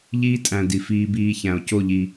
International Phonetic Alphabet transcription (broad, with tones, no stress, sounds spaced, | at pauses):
ʎ iː˦ tʼ æ̃˨ d i˨ f iː˧ b iː˧ ç æ̃˨ o̯ c o˦˨ ʎ i˨